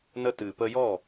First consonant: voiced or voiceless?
voiced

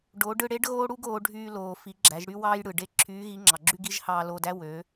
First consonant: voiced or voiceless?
voiced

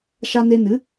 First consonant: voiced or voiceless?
voiceless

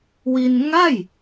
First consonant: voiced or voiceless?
voiced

